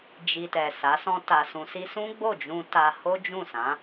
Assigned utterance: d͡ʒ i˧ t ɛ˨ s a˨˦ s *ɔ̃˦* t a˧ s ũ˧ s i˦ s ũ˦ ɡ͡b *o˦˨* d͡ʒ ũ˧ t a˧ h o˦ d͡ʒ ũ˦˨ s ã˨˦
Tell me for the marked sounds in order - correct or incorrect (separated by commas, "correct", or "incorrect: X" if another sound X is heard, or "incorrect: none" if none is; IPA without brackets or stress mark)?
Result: correct, correct